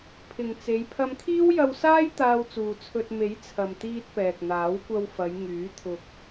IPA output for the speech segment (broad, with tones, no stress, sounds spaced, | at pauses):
pʰ ɪ˨ ŋ t͡s e˨˧ j pʰ ɐ˧ m kʰ iː˥ w j ɐ˧ w s aː˥ j t̪ aː˧ w t͡s uː˨ t͡sʰ ɵ˧ t̚ m e˨˥ j t͡sʰ ɐ˨ m t̪ iː˧ t̚ p ɛː˨ k̚ n̪ aː˨˥ w kʷ ɐ˧ w f ɐ˨˧ j ŋ yː˨˥ t̪ʰ ʊ˧ k̚